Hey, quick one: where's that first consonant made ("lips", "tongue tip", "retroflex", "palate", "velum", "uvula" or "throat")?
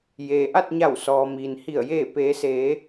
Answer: palate